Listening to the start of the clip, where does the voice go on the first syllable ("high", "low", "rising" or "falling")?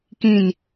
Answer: falling